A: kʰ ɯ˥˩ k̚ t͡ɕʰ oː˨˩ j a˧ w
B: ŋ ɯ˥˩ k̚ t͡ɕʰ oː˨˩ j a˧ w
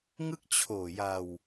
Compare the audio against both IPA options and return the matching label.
B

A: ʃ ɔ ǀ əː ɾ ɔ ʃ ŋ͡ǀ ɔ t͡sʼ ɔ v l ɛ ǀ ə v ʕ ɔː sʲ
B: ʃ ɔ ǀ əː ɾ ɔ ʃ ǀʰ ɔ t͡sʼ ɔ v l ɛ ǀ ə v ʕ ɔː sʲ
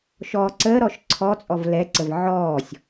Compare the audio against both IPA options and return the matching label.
B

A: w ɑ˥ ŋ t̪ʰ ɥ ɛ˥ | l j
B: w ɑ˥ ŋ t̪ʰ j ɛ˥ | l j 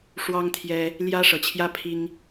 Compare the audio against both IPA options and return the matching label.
B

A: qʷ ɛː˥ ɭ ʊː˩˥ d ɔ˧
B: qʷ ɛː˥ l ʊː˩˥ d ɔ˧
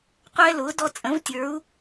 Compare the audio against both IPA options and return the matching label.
B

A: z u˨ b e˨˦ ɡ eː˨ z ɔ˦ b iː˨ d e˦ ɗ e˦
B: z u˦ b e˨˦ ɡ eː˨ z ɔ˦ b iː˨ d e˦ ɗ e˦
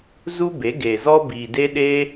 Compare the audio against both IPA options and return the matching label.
B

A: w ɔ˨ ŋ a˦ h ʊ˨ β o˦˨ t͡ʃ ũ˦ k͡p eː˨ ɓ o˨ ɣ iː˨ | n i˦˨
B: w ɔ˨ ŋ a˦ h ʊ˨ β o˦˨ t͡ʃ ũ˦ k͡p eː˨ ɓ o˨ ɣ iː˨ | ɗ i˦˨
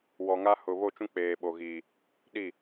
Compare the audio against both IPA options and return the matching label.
B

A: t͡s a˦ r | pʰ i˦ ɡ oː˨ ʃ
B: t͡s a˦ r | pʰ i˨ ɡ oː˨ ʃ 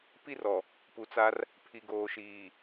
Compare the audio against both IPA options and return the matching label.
B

